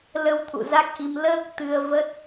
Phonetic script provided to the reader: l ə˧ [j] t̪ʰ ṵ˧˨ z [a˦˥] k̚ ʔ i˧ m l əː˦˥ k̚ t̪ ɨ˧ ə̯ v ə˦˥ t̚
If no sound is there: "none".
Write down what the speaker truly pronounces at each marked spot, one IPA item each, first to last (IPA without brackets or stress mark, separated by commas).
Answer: w, a˦˥